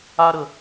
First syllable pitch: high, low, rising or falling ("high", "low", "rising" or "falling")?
high